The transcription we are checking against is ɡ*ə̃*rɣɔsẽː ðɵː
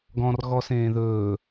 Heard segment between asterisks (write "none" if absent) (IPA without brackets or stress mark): ɔ̃